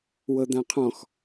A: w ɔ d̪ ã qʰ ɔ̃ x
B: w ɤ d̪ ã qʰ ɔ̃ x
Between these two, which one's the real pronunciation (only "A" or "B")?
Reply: B